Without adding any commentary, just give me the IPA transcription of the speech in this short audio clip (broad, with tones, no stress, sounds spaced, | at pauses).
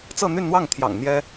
t͡s ɤ˥˧ n̪ y˥˧ n n̪ w ɑ˥˩ ŋ t̪ʰ j ɑ̰˨˩ ŋ n̪ j ɛ˥